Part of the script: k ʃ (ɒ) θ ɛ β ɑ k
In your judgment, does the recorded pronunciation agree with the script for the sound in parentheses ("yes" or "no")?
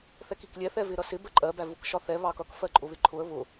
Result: yes